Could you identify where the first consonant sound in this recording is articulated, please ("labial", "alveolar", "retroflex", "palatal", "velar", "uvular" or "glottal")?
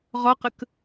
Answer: uvular